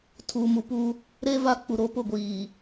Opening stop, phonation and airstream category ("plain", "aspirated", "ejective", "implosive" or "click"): aspirated